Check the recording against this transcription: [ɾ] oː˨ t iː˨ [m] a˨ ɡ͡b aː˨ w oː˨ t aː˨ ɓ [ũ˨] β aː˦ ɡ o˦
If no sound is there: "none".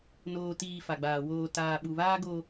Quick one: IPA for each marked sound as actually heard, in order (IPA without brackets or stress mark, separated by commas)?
n, f, u˨